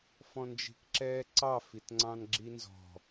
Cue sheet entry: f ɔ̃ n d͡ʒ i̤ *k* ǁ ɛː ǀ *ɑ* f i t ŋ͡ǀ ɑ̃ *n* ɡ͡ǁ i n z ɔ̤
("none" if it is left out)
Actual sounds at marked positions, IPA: k, ɑ, n

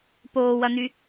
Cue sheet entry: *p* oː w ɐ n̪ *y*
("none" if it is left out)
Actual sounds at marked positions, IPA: p, y

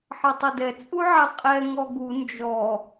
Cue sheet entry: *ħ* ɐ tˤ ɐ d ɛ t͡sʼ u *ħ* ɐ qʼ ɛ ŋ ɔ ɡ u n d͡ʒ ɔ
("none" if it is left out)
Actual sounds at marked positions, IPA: ħ, ʕ

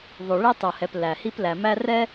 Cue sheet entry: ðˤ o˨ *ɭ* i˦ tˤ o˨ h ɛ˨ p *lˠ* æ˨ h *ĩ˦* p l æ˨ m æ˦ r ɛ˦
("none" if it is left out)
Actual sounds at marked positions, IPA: ɭ, l, i˦

